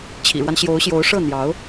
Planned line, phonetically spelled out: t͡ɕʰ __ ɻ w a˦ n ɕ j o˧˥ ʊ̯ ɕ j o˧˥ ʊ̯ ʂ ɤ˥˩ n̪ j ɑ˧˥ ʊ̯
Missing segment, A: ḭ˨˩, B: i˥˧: A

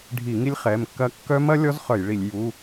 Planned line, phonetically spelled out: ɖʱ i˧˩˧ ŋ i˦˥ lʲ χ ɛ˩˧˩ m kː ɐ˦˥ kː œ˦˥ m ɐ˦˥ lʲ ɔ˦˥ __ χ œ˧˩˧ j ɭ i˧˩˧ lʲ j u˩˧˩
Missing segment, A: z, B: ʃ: A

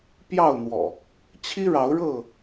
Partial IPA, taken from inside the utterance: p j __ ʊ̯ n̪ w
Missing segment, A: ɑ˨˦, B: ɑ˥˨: B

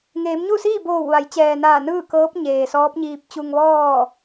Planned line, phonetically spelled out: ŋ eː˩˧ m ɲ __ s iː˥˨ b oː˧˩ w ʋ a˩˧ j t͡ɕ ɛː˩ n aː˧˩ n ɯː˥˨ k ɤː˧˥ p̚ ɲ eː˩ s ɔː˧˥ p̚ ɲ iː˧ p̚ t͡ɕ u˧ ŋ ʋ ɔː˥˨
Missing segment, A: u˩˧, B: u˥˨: B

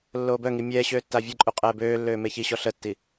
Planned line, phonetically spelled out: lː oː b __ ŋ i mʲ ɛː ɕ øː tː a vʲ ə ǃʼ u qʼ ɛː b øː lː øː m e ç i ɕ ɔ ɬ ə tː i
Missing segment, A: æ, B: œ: B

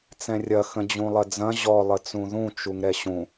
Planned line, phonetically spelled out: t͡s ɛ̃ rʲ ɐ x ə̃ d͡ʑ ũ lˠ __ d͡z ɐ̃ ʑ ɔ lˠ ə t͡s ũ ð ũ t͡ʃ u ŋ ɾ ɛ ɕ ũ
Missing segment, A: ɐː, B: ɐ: B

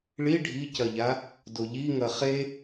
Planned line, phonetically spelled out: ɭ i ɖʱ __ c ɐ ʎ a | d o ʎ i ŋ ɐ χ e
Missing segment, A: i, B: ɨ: A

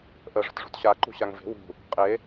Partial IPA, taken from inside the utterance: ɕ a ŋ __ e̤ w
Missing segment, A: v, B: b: A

